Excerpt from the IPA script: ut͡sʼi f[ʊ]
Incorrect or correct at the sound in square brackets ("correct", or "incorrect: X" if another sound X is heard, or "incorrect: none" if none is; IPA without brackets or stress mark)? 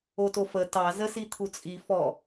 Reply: incorrect: ɔ